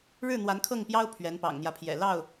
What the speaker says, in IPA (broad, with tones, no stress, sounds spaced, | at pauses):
ɻ ɻ̩˥˩ n̪ w a˧˥ n kʰ ɤ˥˩ ŋ p j ɑ˥ ʊ̯ pʰ ɥ ɛ˧˥ n p ɑ̰˨˩ ŋ n̪ j ä˦ pʰ j ɛ̰˨˩ l ɑ˥˩ ʊ̯